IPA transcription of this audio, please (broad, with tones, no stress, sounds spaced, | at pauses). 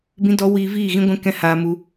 b ĩ˧ d ɔ˧ w iː˧ v iː˦˨ ɣ ĩ˧ ɡʷ ɛ̃˧ k ɛ̃˦ h aː˧ m u˧